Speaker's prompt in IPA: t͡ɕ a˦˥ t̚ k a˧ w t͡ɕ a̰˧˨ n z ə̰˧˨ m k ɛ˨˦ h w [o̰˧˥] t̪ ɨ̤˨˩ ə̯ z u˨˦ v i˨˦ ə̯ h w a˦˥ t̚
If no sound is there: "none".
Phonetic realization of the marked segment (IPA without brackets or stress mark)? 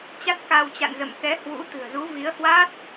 ṵ˧˥